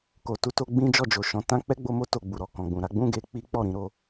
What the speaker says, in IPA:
k o˨ t u˧ t o˧ ɡ͡b ĩ˦ d͡ʒ ɔ˦˨ d͡ʒ o˨ ʃ ɔ̃˨˦ t ã˦ k͡p ɛ˦ ɡ͡b o˧ m o˦ t o˧ ɡ͡b u˨ ɾ ɔ˨ k ɔ̃˨ ɡ͡b ũ˨ ɾ a˨˦ ɡ͡b ũ˦ ɡ e˧ k͡p i˦ k͡p ɔ˦˨ ɾ ĩ˧ ɾ o˧

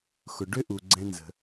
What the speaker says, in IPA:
x ʊ˩ ɖ ʏ˥ ʔ u˩ ɡ͡ǀ ɛ̃˧ n z ə̤˩

